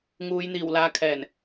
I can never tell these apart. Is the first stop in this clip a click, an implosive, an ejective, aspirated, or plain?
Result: aspirated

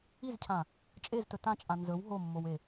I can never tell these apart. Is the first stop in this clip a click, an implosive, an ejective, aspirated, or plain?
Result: aspirated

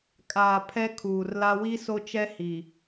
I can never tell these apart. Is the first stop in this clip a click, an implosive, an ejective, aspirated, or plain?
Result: ejective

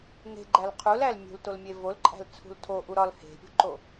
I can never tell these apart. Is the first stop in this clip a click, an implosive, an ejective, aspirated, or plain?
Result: click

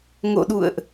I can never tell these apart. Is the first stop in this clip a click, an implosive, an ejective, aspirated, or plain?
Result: implosive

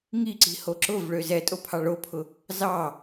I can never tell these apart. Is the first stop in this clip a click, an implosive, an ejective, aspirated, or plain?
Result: click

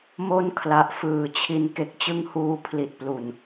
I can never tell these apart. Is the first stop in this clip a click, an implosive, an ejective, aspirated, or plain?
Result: aspirated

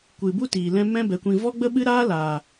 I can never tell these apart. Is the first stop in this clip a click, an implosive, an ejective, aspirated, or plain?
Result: plain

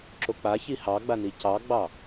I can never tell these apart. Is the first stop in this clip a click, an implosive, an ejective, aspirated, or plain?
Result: click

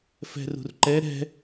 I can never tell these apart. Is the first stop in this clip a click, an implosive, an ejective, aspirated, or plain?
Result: click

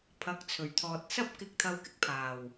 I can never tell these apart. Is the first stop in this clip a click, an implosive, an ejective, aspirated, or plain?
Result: aspirated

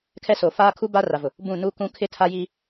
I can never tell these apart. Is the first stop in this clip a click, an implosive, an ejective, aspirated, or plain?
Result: aspirated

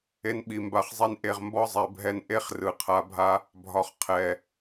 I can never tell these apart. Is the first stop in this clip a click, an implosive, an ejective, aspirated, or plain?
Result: implosive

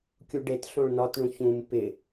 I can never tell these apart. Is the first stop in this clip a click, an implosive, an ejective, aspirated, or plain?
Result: plain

